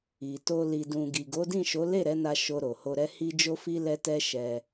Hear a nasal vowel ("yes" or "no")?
yes